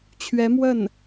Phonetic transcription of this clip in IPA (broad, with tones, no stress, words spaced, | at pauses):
t͡ɕʰɥɛ˧˥mwə˥˩n